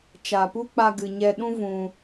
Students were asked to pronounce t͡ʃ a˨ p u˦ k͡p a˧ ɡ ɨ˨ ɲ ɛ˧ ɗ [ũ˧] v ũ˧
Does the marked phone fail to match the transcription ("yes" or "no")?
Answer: yes